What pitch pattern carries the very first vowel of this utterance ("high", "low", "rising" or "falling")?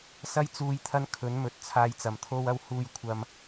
high